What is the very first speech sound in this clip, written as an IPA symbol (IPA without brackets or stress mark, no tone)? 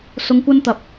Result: s